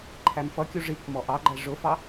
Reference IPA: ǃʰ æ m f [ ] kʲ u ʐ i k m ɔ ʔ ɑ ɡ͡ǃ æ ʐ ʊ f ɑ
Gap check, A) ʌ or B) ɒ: A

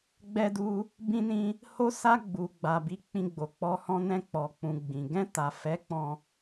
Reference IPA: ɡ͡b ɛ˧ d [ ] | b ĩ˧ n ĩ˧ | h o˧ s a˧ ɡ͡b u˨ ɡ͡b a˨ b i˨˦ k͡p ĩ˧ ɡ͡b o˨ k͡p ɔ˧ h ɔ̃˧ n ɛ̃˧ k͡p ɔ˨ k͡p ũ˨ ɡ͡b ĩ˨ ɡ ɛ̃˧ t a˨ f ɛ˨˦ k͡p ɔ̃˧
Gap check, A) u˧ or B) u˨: A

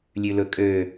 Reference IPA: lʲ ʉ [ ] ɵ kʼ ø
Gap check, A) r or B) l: B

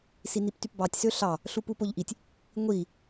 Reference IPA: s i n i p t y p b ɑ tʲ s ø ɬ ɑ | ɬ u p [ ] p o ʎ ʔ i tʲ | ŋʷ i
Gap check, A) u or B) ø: A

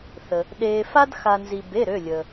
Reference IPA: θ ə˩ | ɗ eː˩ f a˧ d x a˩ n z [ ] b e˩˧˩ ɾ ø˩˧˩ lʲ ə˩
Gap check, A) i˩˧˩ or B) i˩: B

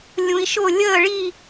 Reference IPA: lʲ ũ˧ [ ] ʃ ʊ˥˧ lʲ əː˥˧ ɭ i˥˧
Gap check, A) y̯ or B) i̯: B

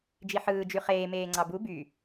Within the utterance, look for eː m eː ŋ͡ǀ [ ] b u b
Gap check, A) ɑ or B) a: A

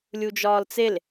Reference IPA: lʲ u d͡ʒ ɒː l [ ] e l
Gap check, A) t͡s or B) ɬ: A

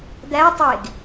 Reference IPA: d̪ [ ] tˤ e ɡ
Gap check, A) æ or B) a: A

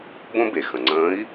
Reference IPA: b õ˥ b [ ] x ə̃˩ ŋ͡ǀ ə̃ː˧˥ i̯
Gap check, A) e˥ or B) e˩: B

